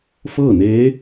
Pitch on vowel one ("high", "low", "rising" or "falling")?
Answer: falling